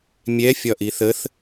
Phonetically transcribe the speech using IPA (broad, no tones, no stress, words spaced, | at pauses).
mʲɛ fʲɒʔiθəθ